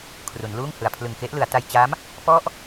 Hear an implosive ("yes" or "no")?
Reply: no